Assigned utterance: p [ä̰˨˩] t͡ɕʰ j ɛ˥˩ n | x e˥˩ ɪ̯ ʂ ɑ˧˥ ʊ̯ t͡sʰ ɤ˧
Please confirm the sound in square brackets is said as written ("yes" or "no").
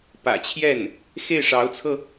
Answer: yes